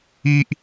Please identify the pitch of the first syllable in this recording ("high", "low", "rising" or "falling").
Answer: high